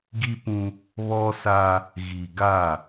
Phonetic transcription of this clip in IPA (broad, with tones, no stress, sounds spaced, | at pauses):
ɡ i˦ p ũ˦ | β ɔ˦ s a˦ | ɣ i˨ ɡ a˦˨